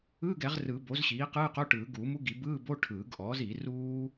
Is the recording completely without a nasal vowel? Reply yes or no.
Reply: yes